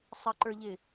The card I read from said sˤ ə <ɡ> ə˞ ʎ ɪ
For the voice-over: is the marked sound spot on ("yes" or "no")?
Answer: no